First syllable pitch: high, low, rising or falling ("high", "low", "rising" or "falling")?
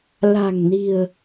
low